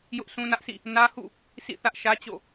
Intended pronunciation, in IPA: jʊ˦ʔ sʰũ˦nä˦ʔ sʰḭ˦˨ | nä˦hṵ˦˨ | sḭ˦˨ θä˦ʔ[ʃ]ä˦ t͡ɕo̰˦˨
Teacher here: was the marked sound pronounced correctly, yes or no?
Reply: yes